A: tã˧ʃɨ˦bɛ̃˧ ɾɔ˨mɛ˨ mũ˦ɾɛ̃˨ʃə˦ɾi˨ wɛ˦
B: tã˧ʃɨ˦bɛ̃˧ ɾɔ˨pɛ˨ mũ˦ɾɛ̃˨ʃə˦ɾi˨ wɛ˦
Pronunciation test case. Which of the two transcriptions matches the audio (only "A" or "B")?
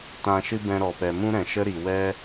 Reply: B